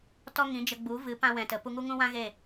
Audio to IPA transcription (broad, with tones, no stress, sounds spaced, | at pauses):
t ɔ˦ ŋ ĩ˨˦ d͡ʒ ə˧ ɡ͡b u˨˦ v ɨ˨˦ p ã˧ w ɛ̃˨ t ə˨ p u˧ ŋ u˦ ŋ ũ˦ w ã˦ ɣ e˦˨